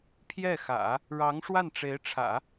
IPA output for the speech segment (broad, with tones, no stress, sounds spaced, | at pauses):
pʰ j ɛ˥˩ x ä̰˨˩˦ | ɻ ɑ˧˥ ŋ ʂ w a˥˩ n ʈ͡ʂ e˧˥ ɪ̯ ʈ͡ʂʰ ä̰˨˩˦